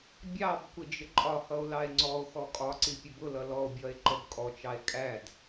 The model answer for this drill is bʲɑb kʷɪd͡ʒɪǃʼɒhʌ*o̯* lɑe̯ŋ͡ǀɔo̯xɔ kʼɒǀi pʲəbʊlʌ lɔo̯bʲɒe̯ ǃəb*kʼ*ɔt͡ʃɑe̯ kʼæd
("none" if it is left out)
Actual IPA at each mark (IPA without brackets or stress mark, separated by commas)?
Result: o̯, kʼ